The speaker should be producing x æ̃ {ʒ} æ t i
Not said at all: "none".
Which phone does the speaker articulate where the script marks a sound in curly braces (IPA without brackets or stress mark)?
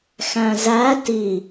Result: z